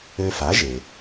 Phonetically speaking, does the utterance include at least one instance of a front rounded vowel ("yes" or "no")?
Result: yes